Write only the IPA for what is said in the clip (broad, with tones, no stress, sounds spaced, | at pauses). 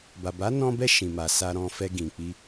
b a˨ b a˨˦ n ɔ̃˧ b ɛ˧ ʃ ĩ˨ m a˨ s a˧ ɾ ɔ̃˧ f ɛ˧ ɡ ĩ˨ k͡p i˧